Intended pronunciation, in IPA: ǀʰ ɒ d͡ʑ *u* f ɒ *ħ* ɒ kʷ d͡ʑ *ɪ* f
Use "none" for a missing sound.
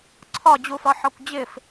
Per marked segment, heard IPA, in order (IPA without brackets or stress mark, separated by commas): u, ħ, ɪ